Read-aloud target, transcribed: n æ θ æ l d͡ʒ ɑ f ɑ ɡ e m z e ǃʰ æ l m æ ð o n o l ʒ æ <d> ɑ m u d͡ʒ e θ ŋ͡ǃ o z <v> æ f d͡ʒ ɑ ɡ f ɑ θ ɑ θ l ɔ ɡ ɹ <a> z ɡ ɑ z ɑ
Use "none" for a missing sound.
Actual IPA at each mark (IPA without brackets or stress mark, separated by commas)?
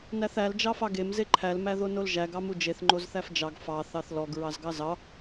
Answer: ɡ, θ, ɑ